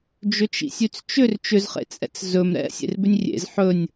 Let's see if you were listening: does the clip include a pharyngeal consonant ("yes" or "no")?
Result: yes